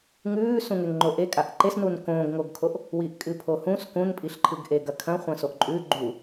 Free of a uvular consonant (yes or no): no